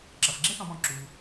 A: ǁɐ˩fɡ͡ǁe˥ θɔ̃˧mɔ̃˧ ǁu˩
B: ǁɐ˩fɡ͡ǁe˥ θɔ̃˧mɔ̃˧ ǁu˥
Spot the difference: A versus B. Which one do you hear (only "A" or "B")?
A